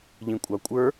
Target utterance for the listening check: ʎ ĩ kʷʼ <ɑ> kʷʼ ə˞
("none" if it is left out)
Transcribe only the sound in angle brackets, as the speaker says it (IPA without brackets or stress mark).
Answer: ɑ